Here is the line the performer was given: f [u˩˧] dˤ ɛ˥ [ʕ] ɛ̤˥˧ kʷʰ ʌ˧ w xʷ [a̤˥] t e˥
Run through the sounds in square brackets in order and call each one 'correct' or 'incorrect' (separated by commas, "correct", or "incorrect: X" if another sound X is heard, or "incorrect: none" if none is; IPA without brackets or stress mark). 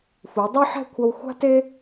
correct, incorrect: ħ, correct